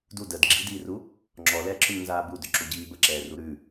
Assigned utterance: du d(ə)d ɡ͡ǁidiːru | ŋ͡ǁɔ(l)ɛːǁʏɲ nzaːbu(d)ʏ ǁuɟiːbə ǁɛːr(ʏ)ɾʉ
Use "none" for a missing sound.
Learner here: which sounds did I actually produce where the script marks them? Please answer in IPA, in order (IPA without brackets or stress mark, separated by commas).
ə, l, d, u